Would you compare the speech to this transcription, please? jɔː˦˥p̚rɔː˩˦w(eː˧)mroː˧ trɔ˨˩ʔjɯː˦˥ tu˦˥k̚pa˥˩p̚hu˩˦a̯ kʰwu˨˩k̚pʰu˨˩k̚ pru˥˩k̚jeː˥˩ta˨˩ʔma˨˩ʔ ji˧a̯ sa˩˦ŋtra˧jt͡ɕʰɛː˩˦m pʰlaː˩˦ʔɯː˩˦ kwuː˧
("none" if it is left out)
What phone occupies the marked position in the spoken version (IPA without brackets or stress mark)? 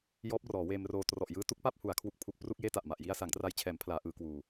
eː˧